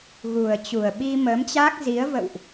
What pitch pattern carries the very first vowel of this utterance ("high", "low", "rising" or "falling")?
low